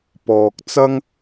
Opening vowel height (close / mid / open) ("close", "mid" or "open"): mid